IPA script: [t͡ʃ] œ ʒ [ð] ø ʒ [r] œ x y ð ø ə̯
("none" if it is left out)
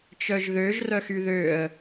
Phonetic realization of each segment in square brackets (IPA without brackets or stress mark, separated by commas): t͡ʃ, ð, r